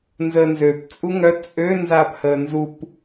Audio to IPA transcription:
n z əː n z ø p t͡sʼ u ŋ œ t͡sʼ ø n z aː p h əː n z u p

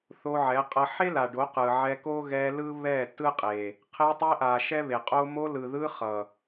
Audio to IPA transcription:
θ o˧ ʕ ɛ˨˦ qʼ ʌ˧ ħ e˦ l a˨ ɖ o˨˦ q ɯ˨ ʕ ɛ˧ k o˦ ɣ ɛ˧ l ɯ˦ β ɛ˦˨ t ɯ˦ qʼ e˨ | qʰ e˧ tˤ e˧ ʔ a˨ ʃ ɛ˦ β e˨ qʼ o˦ m o˧ l ɯ˨ ð ɯ˧ χ ʌ˨

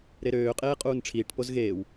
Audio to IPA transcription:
ɾ e ɾ øː qʼ eː qʼ uː n ʈ͡ʂʰ iː ʈ p o z ɣ eː w

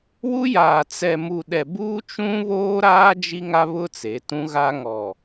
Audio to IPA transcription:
w u˦ j aː˨ t͡s ɛ˨ m u˨ ɗ ɛ˨ b uː˦ t͡ʃ ũ˦ β oː˦ ɾ aː˦ d͡ʒ i˦ ŋ a˦ β ʊ˦ t͡s e˨˦ t ũ˦ ɣ a˦ ŋ ɔ˨

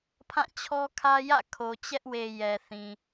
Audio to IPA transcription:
pʰ ã˦˨ t͡ɕʰ ɔ˦ kʰ ä˦ j ä̰˦˨ kʰ o˨ t͡ɕ ɛ˦ ʔ w e˨ j ɛ˨ θ ĩ˨

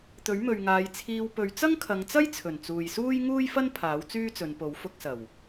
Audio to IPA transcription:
t̪ ɵ˨˥ ɥ m ɵ˨ ɥ ŋ aː˨˧ j t͡sʰ iː˧ w p ɵ˨˧ ɥ t͡s ɐ˥ ŋ kʰ ɐ˨˧ ŋ t͡s ɐ˥ j t͡sʰ ɵ˨˩ n t͡s uː˨ j s uː˥ j ŋ uː˥ j f ɐ˥ n pʰ aː˨˥ w t͡s yː˥ t͡s ɵ˨˧ n p o˨˥ w f ʊ˧ k̚ s ɐ˨˩ w

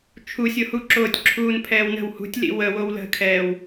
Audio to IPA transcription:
t͡ʃʰ u sʲ o h u ǁ oː tʲ ǁʰ uː n pʰ ɛː w n ə̤ w h ṳ tʲ l ḭ w ə w o w l ə̤ kʰ ɛː w

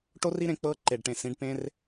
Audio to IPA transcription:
ʈ o˦ r i˦ ɾ ẽ˧ k͡p ɤ˧ ǃ e˨ ɖ ʈ ẽ˨ s ĩ˨˦ ɖ p ẽ˦ r

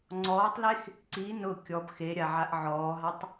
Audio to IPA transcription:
ŋ͡ǀ ɔː tˤ l e x | ǀ i n ʊ kʲ ɔ b x e ɾʲ a ʕ a ʔ ʕ ɔː ɦ a tˤ

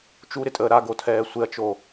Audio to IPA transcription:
t͡ʃ u ɾ ɪ tʼ əː ɾ a ɡ o tʰ ɛː sʷ ɪ ɐ̯ t͡ʃ o

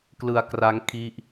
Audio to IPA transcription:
k l ɯ˧ a̯ k r a˦˥ ŋ kʰ i˦˥ ʔ

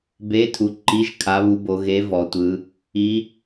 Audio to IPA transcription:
b e˨˥ tʰ u˩˧ ǃ i˨˥ ʒ kʰ a˩˧ β u˩˧ b o˩˧ ɣ e˨˥ v ɔ˩˧ tʷ ɯ˩˧ | i˩˧

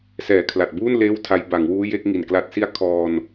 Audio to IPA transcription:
s ɛː˨˩ kʰ l a˨˩ t̚ b uː˥˩ n l eː˥˩ w tʰ a˦˥ j b a˩˦ ŋ w uː˦˥ j e˦˥ k̚ ŋ i˨˩ n k l a˦˥ t̚ s i˥˩ a̯ kʰ ɔː˧ n

